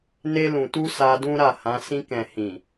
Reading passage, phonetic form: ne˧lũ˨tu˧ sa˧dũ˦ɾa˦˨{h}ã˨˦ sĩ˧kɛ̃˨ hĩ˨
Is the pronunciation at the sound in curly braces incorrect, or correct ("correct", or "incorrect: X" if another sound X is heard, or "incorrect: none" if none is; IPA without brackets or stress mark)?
correct